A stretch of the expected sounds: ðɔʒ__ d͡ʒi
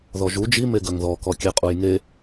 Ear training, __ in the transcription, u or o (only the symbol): u